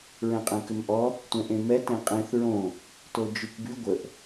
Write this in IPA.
ɹɛ̃qʼɛ̃kʏmʔɔ | tʷɛ̃ʔẽmɛ tẽqʼẽθ ɹõ | tod͡ʒykby ɡʷəʔ

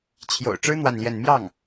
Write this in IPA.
t͡ɕʰjo̰˨˩ʊ̯ ʈ͡ʂɻ̩˥ n̪wa˥˧nljɛ˥˧n mjɑ˥˩ŋ

